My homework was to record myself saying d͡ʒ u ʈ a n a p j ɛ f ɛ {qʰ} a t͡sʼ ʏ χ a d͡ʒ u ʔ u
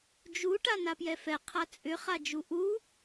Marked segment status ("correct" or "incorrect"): correct